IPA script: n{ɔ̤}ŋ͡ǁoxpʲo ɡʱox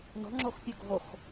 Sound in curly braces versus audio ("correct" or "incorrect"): correct